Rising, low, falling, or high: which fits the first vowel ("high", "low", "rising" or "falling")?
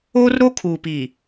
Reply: high